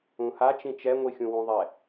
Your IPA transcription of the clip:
ũha t͡ʃĩt͡ʃɛ ŋʷixʲũwũðˤɛ

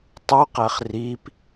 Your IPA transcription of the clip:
tˤuqæχ rip

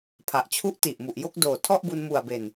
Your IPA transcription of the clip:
pʰa˨˩ʔt͡ɕʰu˦˥ʔti˨˩ʔ mu˨˩ʔ jo˥˩k̚doː˨˩tʰɔ˥˩ʔbu˧n mu˨˩a̯be˨˩n

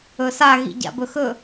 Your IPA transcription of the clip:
ɵsa ɣḭɟa̰bɵxɵ

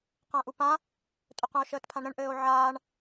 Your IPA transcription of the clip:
qãʔupã | tʼɵqũo̯ʃəːtpʰãɳ ɾə̃ɳʔɘːo̯ ʕaːɳ

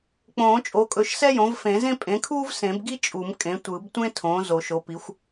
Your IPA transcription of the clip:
k͡põː˨˩˦t͡ʃʼo˩˥kʼɵ˩˥ʃ sɛ˥jõ˩˥vfẽ˨˩˦zẽ˥ pʼẽ˩˥kʰuː˥v sẽ˨˩˦bɡi˥ t͡ʃʼu˨˩˦m kʼẽ˩˥tʷɯ˨˩˦b tʷẽ˥tʰõː˩˥ zo˨˩˦ʃo˩˥pi˩˥xʷ

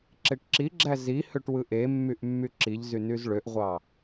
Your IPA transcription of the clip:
ǁeʈǁiɡ͡ǁæ zi høʈwɯʔemːyʔ mːyǁiʎzy nyzɭøʔʁʷɑ

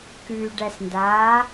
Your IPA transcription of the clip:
kʉːɖæsndaː

